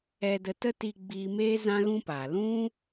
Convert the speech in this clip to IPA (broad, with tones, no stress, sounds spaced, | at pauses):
ɛ˧ d ə˧ t ə˦ t i˧ ɡ͡b iː˧ m eː˦ z ã˦ ɣ ũ˦ p aː˨ l ũ˦